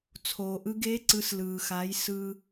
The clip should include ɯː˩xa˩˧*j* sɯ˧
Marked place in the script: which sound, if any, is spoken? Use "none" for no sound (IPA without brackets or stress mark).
j